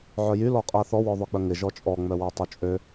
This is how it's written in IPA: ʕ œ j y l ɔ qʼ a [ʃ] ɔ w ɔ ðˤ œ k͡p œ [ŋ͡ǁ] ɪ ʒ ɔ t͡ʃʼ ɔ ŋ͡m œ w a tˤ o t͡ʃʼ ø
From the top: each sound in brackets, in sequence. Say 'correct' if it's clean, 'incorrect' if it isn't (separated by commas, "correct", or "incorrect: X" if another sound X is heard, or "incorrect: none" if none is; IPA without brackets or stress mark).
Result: incorrect: θ, incorrect: ŋ